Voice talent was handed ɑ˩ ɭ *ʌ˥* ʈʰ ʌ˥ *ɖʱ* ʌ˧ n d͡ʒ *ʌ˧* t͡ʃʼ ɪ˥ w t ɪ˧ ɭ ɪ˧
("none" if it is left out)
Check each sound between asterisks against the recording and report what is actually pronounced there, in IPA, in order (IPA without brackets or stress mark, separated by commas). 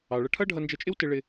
ʌ˧, ɖʱ, ʌ˧